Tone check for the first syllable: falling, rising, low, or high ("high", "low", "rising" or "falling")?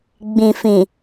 low